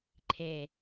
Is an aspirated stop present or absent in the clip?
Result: present